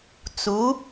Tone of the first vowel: rising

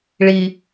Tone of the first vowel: low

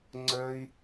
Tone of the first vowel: high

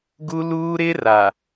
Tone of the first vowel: high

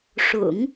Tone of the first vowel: low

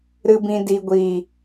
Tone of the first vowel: low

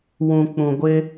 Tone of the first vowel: low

